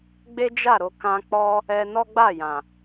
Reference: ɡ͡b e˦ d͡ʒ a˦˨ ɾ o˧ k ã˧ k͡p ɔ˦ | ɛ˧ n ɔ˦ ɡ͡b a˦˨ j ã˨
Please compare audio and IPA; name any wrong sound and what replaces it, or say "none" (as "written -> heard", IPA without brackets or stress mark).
none